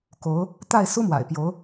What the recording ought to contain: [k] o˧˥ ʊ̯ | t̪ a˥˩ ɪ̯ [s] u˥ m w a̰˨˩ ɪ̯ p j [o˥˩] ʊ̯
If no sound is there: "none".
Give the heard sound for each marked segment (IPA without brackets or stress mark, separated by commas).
k, s, o˧˥